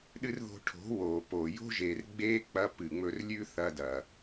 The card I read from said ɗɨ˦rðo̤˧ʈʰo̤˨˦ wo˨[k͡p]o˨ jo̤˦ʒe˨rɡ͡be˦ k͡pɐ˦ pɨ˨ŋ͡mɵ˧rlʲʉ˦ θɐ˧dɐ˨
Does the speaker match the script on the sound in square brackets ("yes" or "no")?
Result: no